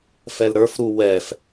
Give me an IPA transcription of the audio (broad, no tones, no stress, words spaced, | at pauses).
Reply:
fɛlɾə˞f ɾu wɛf